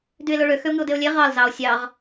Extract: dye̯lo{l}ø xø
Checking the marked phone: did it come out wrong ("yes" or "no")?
yes